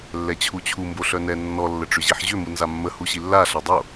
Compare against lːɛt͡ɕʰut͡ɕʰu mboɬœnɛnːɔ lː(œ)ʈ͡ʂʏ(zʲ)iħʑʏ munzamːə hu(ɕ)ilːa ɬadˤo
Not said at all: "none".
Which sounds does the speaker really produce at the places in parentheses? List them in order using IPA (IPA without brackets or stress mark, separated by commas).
ə, ʑ, ɕ